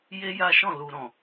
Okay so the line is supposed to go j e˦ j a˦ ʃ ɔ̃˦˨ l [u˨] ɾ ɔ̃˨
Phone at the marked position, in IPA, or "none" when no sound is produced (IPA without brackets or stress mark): u˨